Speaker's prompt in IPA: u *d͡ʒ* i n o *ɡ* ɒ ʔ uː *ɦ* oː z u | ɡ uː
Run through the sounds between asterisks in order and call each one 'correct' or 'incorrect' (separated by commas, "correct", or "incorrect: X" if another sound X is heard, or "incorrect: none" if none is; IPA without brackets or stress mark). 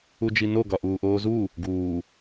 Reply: correct, correct, incorrect: ʔ